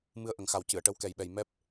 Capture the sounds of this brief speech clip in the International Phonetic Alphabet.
m ɨ˧ ə̯ ʔ ə˨˩ ŋ x a˨˩ w c ɨ˨˩˨ ə̯ ʈ ə˧˥ w k ɛ˨˩ j ɓ ɛ˨˩ j m ɛ˦˥ p̚

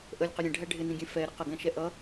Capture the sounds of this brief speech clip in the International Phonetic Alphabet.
ʔ ə lʲ q ɪ ɾʲ ɛ̃ ɖʱ æ ɖʱ ɪ n ĩ ɡʲ ɛ̃ f ɛ ɾ ɪ q ə ɡ æ̃ ʃ ɛ ʔ ʌ

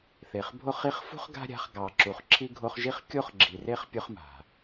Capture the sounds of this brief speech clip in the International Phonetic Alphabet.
θ e˩ χ bʱ o˦ χ i˦ χ f ṳ˥ χ ɡ a̤˥ ɾʲ a̤˦ χ ɡ ɑ˨ ǁ u˨ χ ǁʰ i˦ ɡʱ o˦ χ ʒ i˥ χ kʲ o˥ χ ɡ͡ǁ i˨ r e˥ χ pʲ ʊ˦ χ m a̤˩

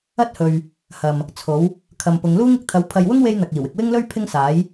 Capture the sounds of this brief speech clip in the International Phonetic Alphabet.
ɐ˥ t̚ h ɵ˨ ɥ | h ɐ˨ m | t͡sʰ o˨˥ w | kʰ ɐ˨ m p ʊ˨˧ ŋ l uː˥ ŋ ɪ˧ k̚ t̪ʰ ɐ˨˥ w pʰ ɐ˨ j w ʊ˥ ŋ w e˥ j n̪ ɐ˨ k̚ iː˨˩ w ɪ˨ k̚ w ɪ˥ ŋ l ɵ˥ ɥ pʰ ɪ˥ ŋ s aː˨˥ j

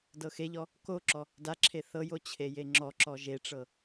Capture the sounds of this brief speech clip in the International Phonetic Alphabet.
d ɤ x e ʎ ɔ | k o ǁ ɔ | d a ǁʰ e θ ɤ j o t͡ɕʰ e j e ŋ͡ǁ ɔ ǁ ɔ ʒ e ʈ͡ʂ ɤ

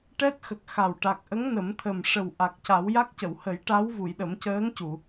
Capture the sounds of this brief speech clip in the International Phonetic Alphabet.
ʈ ɛ˦˥ t̚ x ə˨˩ k̚ x a˨˩ w ʈ a˨˩ k̚ ʔ ə˧˥ ŋ n ə˨˩˦ m t̪ʰ ə˨˩ m ʂ ə˨˩ w ʔ a˨˩ k̚ c a˨˩˦ w j a˦˥ k̚ c ə˨˩˨ w h ə˨˩˦ j ʈ a˧˥ w v u˨˩˨ j ɗ ə˨˩˦ m c əː˧˥ ŋ c u˨˩˨

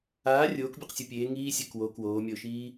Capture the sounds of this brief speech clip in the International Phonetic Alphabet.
aː rʲ oː k bʲ ɔ q sʲ o pʲ eː ŋ iː sʲ ɛ k w o k w oː mʲ ɔ ʊ̯ ʃ iː

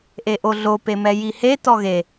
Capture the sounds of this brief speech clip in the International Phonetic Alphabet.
ʔ e ʔ o ɮ o p e m ɛ j i h e t ɔ ɣ e

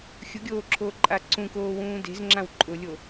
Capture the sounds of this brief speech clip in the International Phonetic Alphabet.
xʲ ʊ ɡʲ oː ǁʰ oː ǃʼ a ǀ ũ k oː w ũː d e̤ z ŋ͡ǁ ã w ǃʼ ʊ lʲ o

